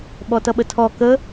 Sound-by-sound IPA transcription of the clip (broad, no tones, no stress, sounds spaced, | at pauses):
ɓ ɔ t ʌ ɓ ə tʰ ɔ k ə